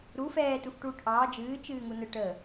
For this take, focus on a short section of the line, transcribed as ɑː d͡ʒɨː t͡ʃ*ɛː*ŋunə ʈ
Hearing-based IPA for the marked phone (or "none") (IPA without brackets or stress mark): ɨː